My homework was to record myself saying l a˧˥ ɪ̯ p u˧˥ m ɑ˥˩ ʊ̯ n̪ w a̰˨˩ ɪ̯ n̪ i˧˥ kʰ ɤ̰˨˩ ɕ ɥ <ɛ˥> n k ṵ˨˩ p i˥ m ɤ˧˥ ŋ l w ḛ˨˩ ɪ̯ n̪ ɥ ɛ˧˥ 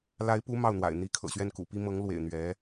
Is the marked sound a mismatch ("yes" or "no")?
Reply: yes